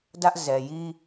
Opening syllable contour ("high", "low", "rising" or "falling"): high